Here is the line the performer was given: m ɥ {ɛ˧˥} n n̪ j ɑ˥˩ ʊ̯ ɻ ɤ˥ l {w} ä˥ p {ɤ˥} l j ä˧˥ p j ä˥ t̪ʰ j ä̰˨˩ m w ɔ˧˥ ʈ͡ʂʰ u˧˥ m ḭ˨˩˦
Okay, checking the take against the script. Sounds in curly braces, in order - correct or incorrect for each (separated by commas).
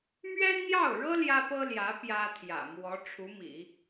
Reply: incorrect, incorrect, correct